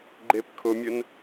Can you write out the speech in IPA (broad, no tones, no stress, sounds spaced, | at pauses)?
ɡ͡ǃ e p kʰ ʊ mʲ ʊ n